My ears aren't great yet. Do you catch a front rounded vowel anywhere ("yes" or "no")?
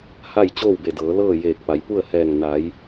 no